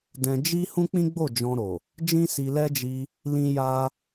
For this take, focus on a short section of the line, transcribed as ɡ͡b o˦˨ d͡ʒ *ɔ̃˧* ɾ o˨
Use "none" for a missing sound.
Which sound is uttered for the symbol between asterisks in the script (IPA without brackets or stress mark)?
ɔ̃˧